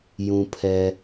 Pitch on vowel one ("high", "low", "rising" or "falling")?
low